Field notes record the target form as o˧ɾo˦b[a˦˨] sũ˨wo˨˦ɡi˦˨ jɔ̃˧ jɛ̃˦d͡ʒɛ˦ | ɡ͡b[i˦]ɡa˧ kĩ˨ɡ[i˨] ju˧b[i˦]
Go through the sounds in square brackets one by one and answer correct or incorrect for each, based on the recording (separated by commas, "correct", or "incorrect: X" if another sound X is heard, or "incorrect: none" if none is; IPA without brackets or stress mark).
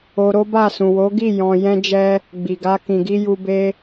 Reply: correct, incorrect: i˨, incorrect: i˧, incorrect: e˦